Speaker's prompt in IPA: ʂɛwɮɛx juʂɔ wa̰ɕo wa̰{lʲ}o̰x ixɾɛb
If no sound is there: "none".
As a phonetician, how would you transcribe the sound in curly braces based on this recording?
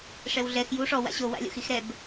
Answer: lʲ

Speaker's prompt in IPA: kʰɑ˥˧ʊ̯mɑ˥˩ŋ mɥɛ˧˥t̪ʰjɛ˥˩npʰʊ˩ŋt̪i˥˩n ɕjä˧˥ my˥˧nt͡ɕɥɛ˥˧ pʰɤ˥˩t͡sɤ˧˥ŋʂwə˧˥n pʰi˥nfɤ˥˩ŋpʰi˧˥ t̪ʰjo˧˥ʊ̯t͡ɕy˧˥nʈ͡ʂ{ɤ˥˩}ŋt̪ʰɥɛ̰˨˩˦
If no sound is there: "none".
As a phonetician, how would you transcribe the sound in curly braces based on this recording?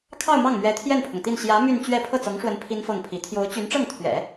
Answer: ɤ˥˩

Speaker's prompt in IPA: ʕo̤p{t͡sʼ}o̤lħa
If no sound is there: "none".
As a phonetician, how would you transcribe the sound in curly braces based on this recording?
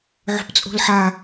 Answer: t͡sʼ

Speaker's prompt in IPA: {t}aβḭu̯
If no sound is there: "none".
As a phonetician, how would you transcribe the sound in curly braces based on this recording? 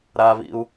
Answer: ɾ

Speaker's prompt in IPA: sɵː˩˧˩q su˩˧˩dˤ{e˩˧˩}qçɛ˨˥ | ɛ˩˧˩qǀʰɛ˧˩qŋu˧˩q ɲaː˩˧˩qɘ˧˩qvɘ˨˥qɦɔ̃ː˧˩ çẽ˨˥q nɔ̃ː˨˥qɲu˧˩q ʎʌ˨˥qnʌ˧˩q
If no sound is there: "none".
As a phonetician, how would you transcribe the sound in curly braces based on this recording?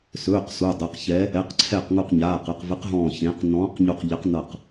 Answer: e˩˧˩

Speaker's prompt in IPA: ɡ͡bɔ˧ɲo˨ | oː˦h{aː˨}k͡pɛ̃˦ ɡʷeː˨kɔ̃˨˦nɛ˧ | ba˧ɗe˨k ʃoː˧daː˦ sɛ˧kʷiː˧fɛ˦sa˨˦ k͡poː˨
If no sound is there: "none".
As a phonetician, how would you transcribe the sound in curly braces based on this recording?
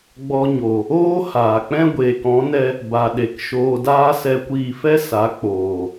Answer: aː˨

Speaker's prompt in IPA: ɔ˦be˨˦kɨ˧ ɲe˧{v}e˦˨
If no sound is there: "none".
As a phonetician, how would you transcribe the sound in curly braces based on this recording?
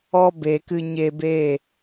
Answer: b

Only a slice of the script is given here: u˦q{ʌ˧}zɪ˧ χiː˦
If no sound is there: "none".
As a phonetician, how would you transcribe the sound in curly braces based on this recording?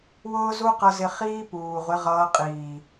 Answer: ʌ˧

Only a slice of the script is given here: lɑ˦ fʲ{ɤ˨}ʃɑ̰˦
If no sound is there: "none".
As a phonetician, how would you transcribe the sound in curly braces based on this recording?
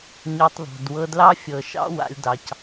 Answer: ɤ˨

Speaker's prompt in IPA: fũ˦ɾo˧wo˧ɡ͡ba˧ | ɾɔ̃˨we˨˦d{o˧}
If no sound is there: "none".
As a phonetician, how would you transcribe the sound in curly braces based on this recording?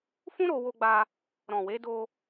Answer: o˧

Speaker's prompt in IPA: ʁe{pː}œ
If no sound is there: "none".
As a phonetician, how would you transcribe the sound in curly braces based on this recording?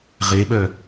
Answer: ɓ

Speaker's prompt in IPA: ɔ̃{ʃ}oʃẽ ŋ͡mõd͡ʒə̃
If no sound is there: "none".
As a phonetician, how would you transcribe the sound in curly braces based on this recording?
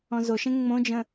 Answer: z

